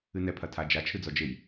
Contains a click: no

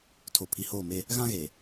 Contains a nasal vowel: yes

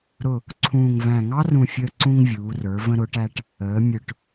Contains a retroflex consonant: yes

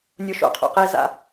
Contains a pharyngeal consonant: no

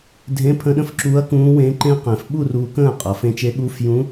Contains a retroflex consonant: no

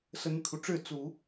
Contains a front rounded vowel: yes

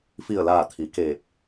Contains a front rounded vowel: no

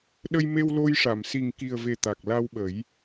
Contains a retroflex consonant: yes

